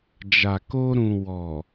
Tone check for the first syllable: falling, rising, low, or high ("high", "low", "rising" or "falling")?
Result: low